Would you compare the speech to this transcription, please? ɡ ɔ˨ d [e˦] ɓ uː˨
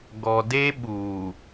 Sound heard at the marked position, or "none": e˦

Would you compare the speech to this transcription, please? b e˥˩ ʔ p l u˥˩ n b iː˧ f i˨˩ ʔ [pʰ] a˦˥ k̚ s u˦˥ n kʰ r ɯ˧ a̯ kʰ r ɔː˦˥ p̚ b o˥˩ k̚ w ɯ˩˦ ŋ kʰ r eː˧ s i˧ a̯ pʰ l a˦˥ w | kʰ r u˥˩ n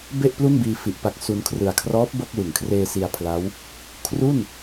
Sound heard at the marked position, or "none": p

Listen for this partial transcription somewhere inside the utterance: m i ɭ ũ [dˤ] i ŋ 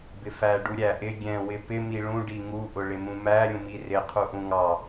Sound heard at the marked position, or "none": ɖ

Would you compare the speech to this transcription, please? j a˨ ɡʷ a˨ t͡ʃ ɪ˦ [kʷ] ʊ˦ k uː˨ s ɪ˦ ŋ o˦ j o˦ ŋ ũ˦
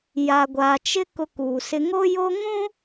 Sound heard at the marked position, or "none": k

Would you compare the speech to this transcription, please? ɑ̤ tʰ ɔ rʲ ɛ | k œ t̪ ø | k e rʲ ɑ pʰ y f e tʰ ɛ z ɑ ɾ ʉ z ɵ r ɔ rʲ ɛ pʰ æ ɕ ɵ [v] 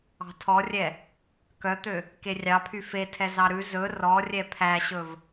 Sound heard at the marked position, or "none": v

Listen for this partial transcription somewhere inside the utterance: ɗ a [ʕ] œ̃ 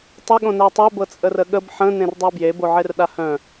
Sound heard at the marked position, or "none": h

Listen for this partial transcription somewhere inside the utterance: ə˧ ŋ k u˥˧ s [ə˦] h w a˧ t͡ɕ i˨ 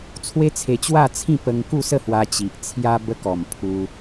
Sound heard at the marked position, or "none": ə˥˧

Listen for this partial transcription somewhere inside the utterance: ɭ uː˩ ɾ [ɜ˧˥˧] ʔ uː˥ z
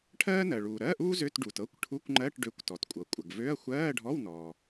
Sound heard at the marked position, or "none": ɜ˧˥˧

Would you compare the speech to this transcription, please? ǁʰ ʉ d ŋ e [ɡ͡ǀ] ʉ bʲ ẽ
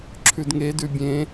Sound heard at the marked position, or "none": d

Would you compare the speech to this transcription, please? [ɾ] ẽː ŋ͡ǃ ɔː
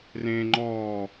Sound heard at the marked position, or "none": r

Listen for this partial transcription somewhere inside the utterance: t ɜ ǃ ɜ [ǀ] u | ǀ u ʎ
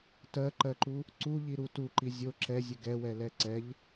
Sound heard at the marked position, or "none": ǃ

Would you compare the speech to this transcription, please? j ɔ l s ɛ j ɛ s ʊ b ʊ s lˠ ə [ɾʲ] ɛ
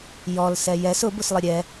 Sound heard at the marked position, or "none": ɾʲ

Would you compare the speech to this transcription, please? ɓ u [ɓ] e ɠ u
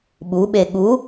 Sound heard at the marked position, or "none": ɓ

